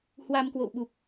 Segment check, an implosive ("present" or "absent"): present